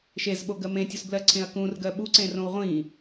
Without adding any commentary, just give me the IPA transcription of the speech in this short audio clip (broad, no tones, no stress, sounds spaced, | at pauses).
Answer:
ʃ e z ɓ o ɡ ɜ m ẽ tʲ u s b l ɜ ǀʰ ẽ ɐ̯ k ũ r ɡ ɜ ɓ u ǀ ẽ r õ w ʁʷ ĩ